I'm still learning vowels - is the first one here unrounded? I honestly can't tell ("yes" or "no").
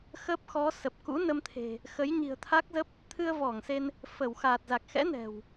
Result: yes